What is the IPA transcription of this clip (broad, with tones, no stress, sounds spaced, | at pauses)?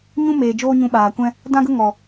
ɲ ũ˦ m eː˨ d͡ʒ oː˦ ɲ ũ˧ ɓ aː˨ kʷ ɛ̃˦ | d ã˦ ɡ ə˦ ŋ ɔ˨